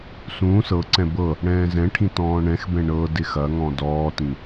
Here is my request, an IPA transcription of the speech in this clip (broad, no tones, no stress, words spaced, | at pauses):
sũːs ɤǀɛ̃ bɤ | ɽɛ̃ːzɛ̃ʈʰĩ tɔ̃ːɳɛ̃xbɛ̃ ɳɤ dɪxɐŋɔ̃ dɔːtĩ